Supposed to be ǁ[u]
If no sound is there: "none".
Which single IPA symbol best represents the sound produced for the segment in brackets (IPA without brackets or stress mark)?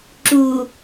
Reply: u